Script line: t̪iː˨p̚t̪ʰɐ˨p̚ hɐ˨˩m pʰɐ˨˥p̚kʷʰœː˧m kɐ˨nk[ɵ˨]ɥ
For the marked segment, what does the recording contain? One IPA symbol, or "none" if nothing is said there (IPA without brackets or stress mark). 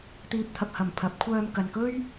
ɵ˥